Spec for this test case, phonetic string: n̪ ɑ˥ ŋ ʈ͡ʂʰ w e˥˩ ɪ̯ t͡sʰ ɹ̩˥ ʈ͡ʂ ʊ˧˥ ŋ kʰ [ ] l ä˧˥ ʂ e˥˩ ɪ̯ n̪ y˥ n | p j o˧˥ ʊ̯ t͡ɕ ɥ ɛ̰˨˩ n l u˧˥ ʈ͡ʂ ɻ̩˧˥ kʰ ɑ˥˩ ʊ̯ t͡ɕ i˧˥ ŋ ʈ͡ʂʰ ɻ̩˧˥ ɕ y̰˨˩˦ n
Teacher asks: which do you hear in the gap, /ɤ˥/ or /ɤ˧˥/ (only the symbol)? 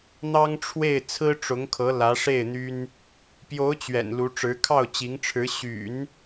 ɤ˧˥